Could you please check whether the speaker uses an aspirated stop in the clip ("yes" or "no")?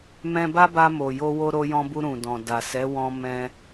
no